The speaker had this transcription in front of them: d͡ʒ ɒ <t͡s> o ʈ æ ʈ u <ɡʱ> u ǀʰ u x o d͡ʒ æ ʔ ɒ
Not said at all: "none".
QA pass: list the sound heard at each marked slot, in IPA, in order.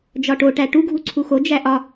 ʈ, ɡʱ

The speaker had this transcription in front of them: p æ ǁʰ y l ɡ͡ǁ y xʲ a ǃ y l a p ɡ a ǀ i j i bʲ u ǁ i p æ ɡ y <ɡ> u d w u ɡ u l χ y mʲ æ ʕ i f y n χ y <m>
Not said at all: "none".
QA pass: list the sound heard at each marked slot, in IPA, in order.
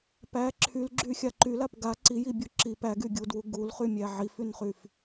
ɡʲ, f

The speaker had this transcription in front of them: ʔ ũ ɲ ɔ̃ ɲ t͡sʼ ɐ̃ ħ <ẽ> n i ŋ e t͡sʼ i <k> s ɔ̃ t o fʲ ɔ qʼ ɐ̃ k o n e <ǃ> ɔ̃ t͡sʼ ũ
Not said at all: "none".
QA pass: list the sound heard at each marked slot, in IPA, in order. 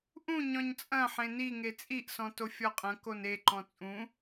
ẽ, ʔ, ǃ

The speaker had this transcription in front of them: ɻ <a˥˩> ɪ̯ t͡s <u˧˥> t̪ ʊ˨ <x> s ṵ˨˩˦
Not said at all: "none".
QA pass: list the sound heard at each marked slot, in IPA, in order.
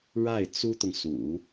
a˥˩, u˥, ŋ

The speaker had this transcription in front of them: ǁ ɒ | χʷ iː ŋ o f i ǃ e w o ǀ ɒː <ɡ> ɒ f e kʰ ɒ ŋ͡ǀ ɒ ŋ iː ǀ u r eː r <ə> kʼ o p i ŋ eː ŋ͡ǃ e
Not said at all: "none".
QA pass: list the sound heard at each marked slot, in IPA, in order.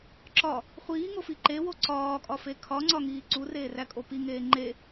kʼ, æ

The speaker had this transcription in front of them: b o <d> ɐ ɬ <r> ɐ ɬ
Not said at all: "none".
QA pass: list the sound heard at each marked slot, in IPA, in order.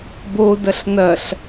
d, n

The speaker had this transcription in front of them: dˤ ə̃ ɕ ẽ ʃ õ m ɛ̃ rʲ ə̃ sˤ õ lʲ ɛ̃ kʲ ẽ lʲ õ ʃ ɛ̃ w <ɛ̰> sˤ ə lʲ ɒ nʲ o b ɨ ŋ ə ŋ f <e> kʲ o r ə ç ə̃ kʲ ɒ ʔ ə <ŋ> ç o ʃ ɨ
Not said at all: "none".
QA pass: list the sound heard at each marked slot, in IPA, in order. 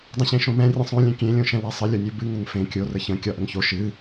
ɛ, ẽ, ŋ

